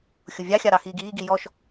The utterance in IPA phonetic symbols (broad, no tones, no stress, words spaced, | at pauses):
xʲʊvʲɑxʲɑ ɾɑxiːɡiːɡi jɔʃ